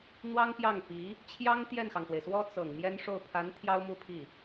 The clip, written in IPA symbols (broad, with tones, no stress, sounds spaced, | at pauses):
n̪ w ɑ˥ ŋ p j ɑ˥˩ ŋ p i˧˥ | t͡ɕʰ j ɑ˥ ŋ t̪ j ɛ˥˩ n x ɑ˩ ŋ s w e˩ ɪ̯ s w ɔ˥ t͡s ɤ˨˩ ŋ m j ɛ˥ n ʂ o˥˩ ʊ̯ pʰ a˧˥ n t̪ʰ j ɑ˥ ʊ̯ m u˥˧ pʰ i˥˩